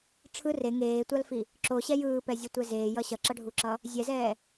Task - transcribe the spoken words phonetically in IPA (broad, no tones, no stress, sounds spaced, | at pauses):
ʈ͡ʂʰ ɯ r e ŋ eː tʷ a l f i | ǁ o ɕ ɛ j ɯː p ɛ zʲ ʌ tʷ ɛ z eː j ʌ ɕ ʌ ǁ ʌ ɖʱ u ǁ ʌ | zʲ ɛ z ɛː